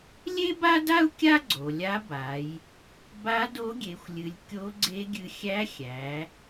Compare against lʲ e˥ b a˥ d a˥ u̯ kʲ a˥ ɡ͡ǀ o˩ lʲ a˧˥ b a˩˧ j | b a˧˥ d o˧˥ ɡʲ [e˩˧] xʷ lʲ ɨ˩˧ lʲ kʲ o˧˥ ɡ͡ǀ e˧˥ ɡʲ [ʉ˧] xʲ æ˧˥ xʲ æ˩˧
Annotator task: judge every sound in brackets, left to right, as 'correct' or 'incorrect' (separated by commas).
correct, incorrect